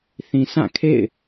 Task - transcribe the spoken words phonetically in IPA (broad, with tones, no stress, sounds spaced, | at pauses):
θ ĩ˨ sʰ ã˦˨ kʰ ḛ˦˨ ɪ̯